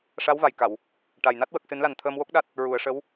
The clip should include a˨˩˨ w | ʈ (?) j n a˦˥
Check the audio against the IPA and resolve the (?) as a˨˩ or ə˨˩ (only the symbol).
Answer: a˨˩